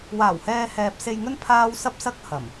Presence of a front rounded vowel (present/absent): absent